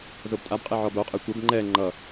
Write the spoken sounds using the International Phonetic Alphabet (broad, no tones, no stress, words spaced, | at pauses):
zobtʼabqʼe ʕɔboqʼɛ kʷɛb ŋ͡ǃɛ ŋ͡ǃʌ